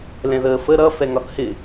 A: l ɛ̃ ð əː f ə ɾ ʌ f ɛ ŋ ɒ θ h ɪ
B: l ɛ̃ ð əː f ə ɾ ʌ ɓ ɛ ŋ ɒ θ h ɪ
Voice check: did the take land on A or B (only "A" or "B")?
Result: A